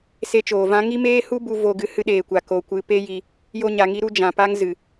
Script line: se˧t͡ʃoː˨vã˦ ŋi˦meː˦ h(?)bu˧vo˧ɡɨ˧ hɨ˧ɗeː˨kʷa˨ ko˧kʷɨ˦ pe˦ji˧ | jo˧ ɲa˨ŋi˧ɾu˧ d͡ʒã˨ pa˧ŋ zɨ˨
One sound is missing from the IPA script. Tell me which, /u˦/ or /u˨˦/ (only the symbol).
u˦